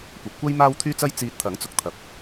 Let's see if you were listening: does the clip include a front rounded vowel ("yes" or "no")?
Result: yes